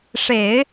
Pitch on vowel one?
low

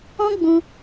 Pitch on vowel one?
high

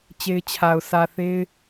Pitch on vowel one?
high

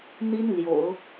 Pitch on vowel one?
high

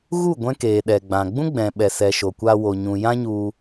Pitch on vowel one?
falling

